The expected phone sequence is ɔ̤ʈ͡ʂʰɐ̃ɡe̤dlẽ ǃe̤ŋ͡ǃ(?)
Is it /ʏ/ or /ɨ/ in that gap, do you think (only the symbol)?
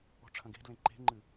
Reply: ɨ